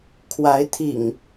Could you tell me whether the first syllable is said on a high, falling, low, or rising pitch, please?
rising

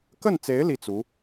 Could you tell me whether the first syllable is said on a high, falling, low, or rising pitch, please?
falling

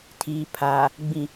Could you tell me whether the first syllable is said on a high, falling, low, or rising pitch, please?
low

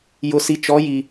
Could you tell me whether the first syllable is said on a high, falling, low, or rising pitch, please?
low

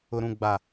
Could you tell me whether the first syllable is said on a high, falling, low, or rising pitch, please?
low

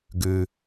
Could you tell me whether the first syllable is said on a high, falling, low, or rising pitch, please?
low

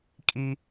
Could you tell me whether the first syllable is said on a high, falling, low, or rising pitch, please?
high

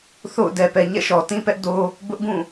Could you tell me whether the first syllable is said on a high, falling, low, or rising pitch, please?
falling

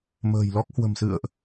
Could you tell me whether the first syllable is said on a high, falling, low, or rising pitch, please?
low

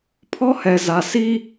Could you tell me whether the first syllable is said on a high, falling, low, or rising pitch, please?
high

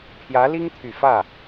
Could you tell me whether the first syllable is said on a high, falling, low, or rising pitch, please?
rising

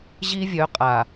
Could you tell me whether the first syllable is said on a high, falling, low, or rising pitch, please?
high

